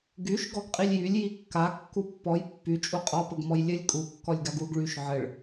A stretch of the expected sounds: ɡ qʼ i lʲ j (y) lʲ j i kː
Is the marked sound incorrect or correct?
correct